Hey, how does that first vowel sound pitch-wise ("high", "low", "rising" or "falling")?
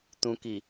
low